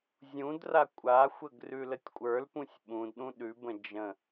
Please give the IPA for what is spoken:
zʲũdra kʷʼaxʷəɡ rʉlətʲkʷʼə˞lpũsʲ ɓũdɗũ ɗʉbə̃ d͡ʒə̃

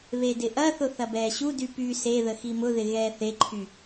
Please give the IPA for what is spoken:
βedɪʔɐθʊ θɐbɛːɕudy py seðə ximʊðɪ ɣɛːθeǃʰy

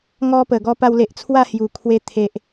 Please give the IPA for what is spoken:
ŋɔ˧pə˨˩ ɡɔ˧pa˧wle˨ʔ t͡sʰwa˥˧hju˨˩kʰwe˧ t̪ʰe˨ʔ

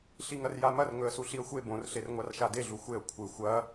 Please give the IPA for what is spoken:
ɬiŋɐrjamɐr ŋɵə̯suɬiə̯xʷe bõr ɬerŋʷarʃade ɮuxʷeə̯ kʷʰɨ xʷɐ

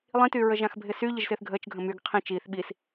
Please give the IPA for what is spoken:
lˠĩty ɹəʒãxbʱɪsy ʎəʒsɪːθɡʱəːt͡ʃ ɡʱə̃myɡ qʰĩ t͡ʃiːθ ɓis

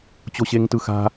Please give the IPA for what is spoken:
t͡ɕoɕeŋtɯxa̤

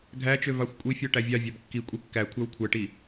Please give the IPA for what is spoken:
ɡʱæt͡ʃø vɑxʷkʷʼifʲɔ ʈævʲɑ vʲɑbkːi kʷʼikːækʷʰæw kʷʰæʈi

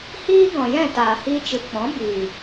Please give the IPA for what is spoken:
hiː˦ɡɔ̃˨jɛ̃˦˨taː˨ hiː˧t͡ʃɨ˨k͡pɔ̃˨˦ biː˨

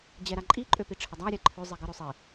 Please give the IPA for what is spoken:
d͡ʑɛɾaǃʼi ǃʼøpiʈ͡ʂʰədˤa ɾʲaǃʰø zˤiɡə ɾøsˤi

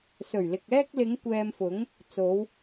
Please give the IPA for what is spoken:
sɵ˨˩ɥlɪ˨k̚ ɛː˧k̚lɪ˨˧ŋ kʷɛː˧mfʊ˨˥ŋ | t͡so˨˧w

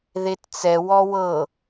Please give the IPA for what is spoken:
ðett͡sɛ wɔwɤ

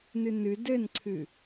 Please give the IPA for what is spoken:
nɨnɨ dɘnǀʰɨ

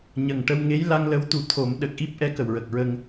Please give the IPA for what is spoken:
ɲə˨˩ŋʈə˧w ŋe˧˥jla˧ŋlə˧˥wt̪u˨˩ t̪ʰo˨˩˦m ɗə˨˩k̚ ʔi˦˥p̚ʔɛ˧˥ kə˨˩wɹə˨˩k̚ɹə˧ŋ

